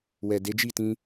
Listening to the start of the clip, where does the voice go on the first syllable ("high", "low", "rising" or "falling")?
low